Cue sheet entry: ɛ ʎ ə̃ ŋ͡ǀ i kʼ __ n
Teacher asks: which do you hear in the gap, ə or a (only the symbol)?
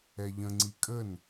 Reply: ə